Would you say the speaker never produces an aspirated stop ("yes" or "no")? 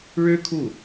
no